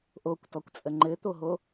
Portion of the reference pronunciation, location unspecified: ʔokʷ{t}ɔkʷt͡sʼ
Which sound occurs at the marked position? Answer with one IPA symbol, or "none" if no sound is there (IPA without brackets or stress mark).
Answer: t